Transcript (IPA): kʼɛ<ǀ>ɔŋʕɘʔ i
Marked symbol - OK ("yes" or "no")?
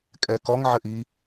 no